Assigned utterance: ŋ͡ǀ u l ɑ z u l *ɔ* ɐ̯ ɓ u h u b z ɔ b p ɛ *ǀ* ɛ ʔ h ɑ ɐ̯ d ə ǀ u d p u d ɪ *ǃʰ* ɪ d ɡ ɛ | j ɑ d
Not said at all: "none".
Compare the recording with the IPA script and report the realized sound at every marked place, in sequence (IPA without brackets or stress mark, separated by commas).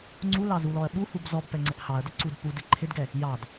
ɔ, ŋ͡ǀ, ǃʰ